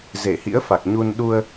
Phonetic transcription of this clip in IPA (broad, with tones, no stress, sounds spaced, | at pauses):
z e˧˩ h ḭ˧˥ ə̯ f a˨˩ k̚ ɲ u˧ n ɗ u˧ ə̯